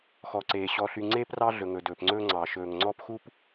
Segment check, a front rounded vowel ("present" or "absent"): present